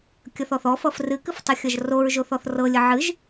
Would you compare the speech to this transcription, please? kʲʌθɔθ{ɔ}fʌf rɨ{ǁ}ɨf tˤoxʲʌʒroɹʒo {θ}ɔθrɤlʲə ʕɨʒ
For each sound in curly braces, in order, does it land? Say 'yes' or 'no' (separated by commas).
yes, no, yes